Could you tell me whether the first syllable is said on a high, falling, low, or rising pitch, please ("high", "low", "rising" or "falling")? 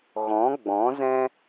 rising